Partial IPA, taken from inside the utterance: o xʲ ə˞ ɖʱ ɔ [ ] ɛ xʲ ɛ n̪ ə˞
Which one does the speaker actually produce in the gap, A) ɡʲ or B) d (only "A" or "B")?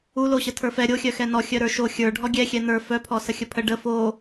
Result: A